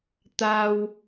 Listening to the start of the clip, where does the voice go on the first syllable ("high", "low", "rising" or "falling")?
high